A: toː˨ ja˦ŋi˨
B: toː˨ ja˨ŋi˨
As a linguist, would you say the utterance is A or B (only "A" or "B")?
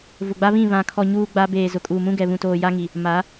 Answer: A